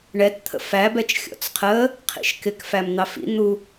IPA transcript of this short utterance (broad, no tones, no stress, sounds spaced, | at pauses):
ɳ ɛ t t̪ʰ ə̰ f æ b ɛ t͡ʃ xʲ ɔ̰ t͡s qʰ ə | qʰ ḭ ʃ k ɪ k f æ m n̪ ɑ f ḭ n̪ u